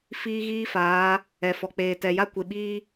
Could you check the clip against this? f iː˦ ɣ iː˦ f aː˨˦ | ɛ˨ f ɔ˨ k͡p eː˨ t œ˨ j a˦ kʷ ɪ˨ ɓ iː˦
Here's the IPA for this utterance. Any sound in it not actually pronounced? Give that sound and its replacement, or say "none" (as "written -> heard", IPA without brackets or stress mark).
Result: œ˨ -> ɛ˨